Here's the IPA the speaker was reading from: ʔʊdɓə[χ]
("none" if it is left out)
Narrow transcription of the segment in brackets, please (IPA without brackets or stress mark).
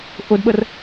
r